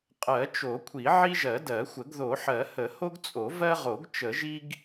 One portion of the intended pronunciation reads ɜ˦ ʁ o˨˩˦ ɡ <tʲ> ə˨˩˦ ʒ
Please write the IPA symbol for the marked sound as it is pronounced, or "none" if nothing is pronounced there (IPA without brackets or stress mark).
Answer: t͡ʃ